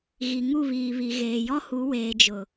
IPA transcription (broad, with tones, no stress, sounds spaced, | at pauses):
ɣ i˨ ŋ u˦˨ β iː˨ β i˨ ɣ eː˨ j ɔ˦ h u˨˦ w eː˨ d͡ʒ ʊ˨